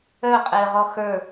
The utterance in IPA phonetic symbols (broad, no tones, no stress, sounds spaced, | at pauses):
œ qʼ ɪː ʁ ɔ x ə˞